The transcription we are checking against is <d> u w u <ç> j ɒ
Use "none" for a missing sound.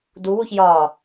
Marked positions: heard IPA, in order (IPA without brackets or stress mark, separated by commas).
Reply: d, ç